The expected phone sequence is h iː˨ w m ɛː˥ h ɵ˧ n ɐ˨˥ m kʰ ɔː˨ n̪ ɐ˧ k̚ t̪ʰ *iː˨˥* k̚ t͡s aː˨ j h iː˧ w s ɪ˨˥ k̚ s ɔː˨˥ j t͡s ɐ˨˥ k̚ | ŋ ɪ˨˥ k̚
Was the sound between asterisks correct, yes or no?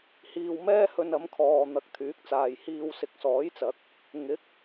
no